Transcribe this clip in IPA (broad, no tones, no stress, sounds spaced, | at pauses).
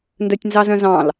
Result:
n d œ tʲ n z ɑ z œ̃ z ɑ̃ l